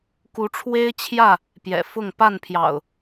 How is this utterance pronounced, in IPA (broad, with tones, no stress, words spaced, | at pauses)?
ku˨˦ʈ͡ʂʰwe˦ɪ̯t͡ɕʰjä˥˨ | pjɛ̰˨˩fʊ˥˨ŋ pa˥˨npʰjɑ̰˨˩ʊ̯